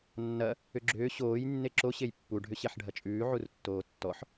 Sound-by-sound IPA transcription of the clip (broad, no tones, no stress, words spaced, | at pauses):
nːɐ | ʏɡ͡ǁʏː ɕoːj nːeǁo ɕejpːu ɖʱʏɕɛħɖʱɐt͡ʃʼʉː ʕurtːoːtːɔħ